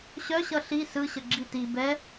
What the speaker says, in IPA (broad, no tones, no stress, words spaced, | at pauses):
ɕœɕʌ ɬi sɯɕə ɡ͡ǁiti bɛ